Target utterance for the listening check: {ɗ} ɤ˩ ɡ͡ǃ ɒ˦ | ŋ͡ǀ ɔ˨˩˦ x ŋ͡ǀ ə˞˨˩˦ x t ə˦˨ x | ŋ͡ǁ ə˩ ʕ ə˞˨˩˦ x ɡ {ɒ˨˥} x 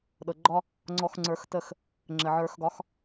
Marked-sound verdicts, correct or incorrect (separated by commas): correct, correct